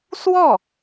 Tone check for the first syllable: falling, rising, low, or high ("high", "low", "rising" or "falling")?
falling